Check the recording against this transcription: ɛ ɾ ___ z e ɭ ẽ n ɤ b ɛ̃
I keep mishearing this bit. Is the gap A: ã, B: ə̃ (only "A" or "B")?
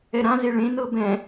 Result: A